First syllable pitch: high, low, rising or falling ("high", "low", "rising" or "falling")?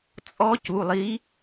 rising